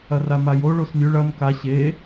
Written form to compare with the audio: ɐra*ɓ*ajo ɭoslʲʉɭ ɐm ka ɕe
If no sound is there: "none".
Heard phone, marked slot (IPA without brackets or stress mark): m